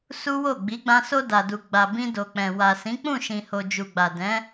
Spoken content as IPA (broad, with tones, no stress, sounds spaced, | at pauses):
s u˦ w o˦˨ ɡ͡b i˨˦ ɡ͡b ã˧ s o˧ d a˨ d u˨ ɡ͡b a˨ b ĩ˧ d o˨ k͡p ɛ̃˨ w a˨ s ĩ˨˦ k͡p ũ˦˨ ʃ ĩ˨ h o˨ d͡ʒ u˨ ɡ͡b a˨ d ɛ̃˨˦